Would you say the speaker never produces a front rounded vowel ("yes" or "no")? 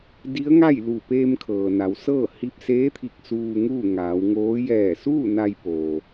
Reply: yes